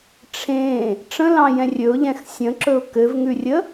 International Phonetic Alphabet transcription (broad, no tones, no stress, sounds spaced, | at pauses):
ʈ͡ʂʰ ẽ | ʈ͡ʂ ə̃ l ɑ̃ j ɛ̃ rʲ ɵ ʊ̯ ʎ ɛ̃ x sʲ ə̃ ǁ ɵ ʊ̯ k ɘ v ŋ ʉ rʲ ə